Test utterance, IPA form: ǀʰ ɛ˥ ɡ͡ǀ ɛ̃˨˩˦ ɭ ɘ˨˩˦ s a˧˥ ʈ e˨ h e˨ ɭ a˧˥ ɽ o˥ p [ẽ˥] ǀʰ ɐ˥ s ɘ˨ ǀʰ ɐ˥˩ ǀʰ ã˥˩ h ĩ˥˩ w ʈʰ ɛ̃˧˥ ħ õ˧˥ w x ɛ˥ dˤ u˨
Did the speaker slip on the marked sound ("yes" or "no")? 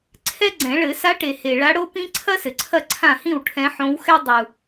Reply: yes